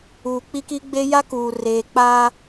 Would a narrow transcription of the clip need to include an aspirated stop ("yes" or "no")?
no